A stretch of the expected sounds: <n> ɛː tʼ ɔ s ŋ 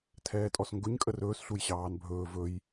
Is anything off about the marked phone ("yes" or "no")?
yes